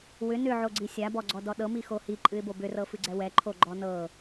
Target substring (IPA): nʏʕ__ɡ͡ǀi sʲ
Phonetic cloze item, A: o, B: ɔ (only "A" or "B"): A